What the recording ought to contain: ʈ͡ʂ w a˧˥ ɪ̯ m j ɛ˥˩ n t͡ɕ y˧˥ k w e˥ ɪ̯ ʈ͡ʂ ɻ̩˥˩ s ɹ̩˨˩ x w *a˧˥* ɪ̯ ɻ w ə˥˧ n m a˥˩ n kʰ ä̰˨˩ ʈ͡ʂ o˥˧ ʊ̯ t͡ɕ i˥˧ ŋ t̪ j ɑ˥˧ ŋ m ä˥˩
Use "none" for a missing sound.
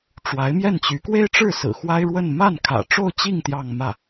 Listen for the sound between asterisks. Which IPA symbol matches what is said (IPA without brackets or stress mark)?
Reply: a˥